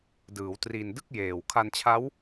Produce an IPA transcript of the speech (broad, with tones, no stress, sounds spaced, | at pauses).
d ɯː˩˦ w t r i˧ n d ɯ˥˩ k̚ j eː˨˩ w kʰ a˧ n t͡ɕʰ a˦˥ w